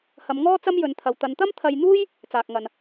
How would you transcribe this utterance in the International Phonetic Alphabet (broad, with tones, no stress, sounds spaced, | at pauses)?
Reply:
h ɐ˨˧ m ŋ ɔː˥ t͡s ɐ˥ m j ɵ˨˧ n t̪ʰ ɐ˨ w t̪ ɐ˨˧ n t̪ ɐ˥ m t̪ʰ ɐ˧ j n̪ uː˥ j | t͡s aː˨ k̚ ŋ ɐ˨ n